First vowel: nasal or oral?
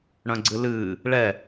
nasal